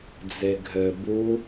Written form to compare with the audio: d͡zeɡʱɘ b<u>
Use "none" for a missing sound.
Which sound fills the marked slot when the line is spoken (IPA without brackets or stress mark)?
u